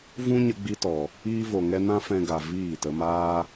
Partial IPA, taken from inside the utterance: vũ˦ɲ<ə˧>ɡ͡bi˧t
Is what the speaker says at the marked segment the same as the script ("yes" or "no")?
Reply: yes